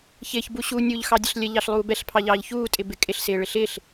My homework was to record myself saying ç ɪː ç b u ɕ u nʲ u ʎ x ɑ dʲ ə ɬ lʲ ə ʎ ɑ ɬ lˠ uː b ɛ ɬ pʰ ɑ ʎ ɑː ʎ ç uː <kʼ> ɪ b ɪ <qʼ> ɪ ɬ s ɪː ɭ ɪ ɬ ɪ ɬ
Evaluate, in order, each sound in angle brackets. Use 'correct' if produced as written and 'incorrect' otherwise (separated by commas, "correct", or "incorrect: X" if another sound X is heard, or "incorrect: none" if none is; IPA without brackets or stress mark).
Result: incorrect: tʼ, incorrect: kʼ